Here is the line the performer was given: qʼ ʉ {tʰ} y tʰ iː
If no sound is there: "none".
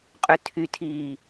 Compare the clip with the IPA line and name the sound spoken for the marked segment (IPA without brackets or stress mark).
tʰ